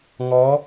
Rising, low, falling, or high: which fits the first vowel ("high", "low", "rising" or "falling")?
rising